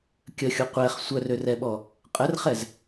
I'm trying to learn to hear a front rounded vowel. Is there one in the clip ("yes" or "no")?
yes